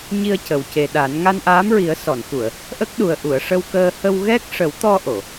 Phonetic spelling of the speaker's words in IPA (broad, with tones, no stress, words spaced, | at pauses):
ɲi˧ə̯cə˨˩w ce˨˩ɗa˨˩˦n ŋa˧nʔaː˧˥mɹi˨˩˦ə̯ sɔ˨˩˨nxu˨˩˨ə̯ | ʔə˦˥k̚ɗu˨˩ə̯ʔu˨˩˨ə̯ ʂə˧wkəː˧ hə˧wɣɛ˦˥k̚ ʂə˨˩˦wt̪ɔ˧ ʔo˨˩˨